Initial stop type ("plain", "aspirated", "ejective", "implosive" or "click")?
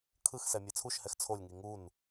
aspirated